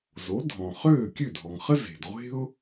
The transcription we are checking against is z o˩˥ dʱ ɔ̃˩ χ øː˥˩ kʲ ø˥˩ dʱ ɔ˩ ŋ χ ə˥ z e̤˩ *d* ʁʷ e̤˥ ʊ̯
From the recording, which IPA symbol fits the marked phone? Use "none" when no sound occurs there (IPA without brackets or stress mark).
d